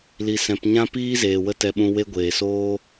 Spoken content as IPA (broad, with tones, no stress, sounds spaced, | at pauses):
l i˨ s ɛ̃˨ p ɲ ã˦ p iː˦ z eː˨ w ə˦ t ɛ˧ ɓ ũ˧ w e˦ ɡʷ eː˨ s oː˦